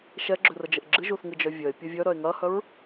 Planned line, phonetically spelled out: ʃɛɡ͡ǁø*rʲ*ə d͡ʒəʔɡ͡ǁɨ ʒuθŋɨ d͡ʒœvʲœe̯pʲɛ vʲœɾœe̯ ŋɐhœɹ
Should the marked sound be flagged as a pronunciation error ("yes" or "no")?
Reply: yes